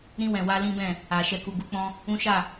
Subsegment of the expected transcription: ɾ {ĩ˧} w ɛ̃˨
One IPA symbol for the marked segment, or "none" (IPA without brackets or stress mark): ĩ˧